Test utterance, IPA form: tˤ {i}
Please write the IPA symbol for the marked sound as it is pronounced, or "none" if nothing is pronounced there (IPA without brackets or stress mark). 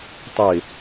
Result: e